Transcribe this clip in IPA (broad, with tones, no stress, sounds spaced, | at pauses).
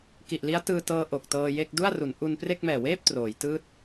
k i˨˩ ʔ l i˦˥ a̯ t ɯː˧ t ɤː˧ ʔ o˨˩ k̚ t ɤː˧ j e˥˩ k̚ d u˥˩ a̯ r u˩˦ n ʔ u˧ n p r e˥˩ k̚ m ɛː˨˩ w eː˥˩ p̚ t r oː˩˦ j t ɯː˦˥ t̚